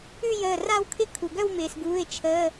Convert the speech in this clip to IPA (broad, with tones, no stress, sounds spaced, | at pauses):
ʉ˥˧ j əː˧˩ r a˥˧ w kʰ ɪ˥˧ kʰ u˩ ɡ œ˥˧ w m ɪː˩ s ɡ uː˩˧˩ ɪ̯ t͡ʃʰ əː˩˧˩